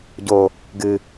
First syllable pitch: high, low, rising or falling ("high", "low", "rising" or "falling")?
low